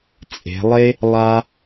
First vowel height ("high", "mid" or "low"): mid